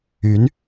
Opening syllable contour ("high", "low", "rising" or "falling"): rising